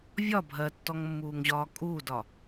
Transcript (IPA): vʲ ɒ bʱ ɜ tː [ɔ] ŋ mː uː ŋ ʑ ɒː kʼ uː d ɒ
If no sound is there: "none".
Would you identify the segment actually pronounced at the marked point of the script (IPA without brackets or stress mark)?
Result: ɔ